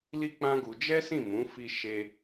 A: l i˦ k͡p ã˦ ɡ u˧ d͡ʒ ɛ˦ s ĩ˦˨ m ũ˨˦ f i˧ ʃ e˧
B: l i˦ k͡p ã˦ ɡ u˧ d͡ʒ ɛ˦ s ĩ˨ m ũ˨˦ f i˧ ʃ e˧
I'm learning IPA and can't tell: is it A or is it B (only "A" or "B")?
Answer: A